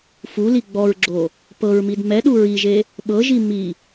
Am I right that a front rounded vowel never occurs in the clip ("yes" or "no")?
yes